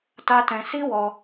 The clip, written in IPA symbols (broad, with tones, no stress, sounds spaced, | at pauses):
t a˦ t ɛ̃˧ s i˦ w ɔ˧